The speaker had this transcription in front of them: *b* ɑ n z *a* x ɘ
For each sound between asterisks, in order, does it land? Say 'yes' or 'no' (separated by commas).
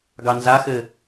no, yes